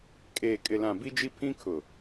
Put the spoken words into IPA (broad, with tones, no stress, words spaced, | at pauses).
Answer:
kʼeː˨kʼɪ˨lã˨ bi˦d͡ʒi˦ pʰĩ˦kʰʊ˨